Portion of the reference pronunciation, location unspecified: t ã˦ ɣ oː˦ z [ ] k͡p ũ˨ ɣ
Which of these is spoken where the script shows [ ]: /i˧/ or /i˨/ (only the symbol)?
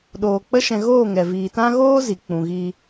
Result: i˨